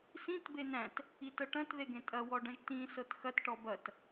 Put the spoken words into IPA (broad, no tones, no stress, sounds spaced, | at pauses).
s ĩ t b e n æ̃ t | i t ɤ ʈ ɐ̃ t ð e ɡ ẽ tʼ ɐ w ɔ ɖ ɐ̃ ʒ t ĩ s ɤ t x ɐ t ʈ ɔ b ɐ t